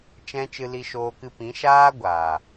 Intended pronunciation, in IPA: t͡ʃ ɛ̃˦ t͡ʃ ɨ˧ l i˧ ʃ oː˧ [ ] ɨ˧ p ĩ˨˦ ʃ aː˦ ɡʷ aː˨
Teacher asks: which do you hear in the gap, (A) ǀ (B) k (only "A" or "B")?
B